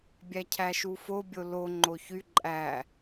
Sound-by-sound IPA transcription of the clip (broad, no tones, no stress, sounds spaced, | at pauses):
bʲ æ cʰ æ ʃ u f o bʲ o l o ŋ͡ǃ o ç y ǃʼ æ